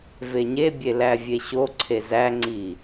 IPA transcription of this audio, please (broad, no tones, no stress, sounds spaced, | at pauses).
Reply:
v e ɲ e bʲ e l æ vʲ e ɕ o ǀʰ e z æ ŋ͡ǀ i